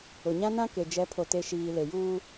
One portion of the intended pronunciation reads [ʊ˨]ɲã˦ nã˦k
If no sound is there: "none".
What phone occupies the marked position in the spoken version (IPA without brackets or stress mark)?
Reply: ʊ˨